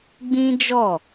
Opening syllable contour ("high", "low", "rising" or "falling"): high